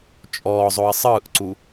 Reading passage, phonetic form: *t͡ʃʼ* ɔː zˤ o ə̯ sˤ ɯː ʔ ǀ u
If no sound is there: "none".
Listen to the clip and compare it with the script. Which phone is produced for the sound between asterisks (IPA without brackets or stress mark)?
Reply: t͡ʃʼ